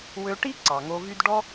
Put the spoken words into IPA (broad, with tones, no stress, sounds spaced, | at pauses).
w ø˧ ʈ i˦ ǀ ɑ˨ ŋ o˧ v y˦ d ɖ ɔ˦